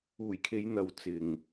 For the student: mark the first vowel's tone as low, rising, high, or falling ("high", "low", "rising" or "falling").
low